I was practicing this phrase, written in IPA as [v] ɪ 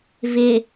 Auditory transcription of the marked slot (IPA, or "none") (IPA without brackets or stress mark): v